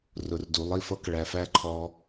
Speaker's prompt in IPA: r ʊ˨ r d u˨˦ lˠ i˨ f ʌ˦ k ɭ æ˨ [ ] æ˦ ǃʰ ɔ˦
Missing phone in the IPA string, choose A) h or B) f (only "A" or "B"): B